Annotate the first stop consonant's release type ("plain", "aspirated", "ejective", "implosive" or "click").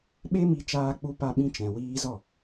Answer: implosive